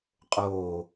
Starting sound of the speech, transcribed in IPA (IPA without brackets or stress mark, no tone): qʼ